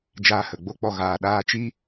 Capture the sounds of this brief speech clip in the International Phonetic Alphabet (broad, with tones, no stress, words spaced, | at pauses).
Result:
d͡ʒaː˧hə˨ɡ͡bo˦k͡pɔ˧ ɣaː˧ɗaː˦ t͡ʃi˦